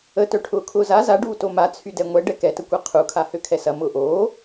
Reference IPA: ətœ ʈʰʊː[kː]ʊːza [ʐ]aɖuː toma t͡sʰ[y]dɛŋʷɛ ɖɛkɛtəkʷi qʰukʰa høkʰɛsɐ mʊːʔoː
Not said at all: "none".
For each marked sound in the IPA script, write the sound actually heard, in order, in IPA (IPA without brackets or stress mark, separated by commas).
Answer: kʰ, z, y